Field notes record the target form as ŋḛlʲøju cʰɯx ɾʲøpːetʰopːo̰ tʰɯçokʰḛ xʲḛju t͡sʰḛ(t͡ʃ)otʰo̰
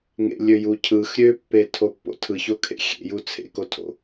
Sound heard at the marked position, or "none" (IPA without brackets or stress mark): k